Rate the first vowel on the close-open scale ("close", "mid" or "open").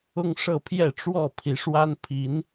close